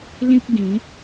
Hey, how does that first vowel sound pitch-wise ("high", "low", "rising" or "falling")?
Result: high